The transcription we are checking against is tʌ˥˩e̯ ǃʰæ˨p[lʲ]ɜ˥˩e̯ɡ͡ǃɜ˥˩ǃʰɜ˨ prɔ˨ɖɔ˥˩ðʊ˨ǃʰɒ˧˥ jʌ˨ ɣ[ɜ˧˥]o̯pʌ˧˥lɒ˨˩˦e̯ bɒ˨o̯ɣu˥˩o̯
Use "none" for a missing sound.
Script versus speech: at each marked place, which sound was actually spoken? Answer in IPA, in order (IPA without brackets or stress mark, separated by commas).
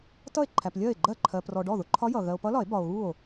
lʲ, ɜ˨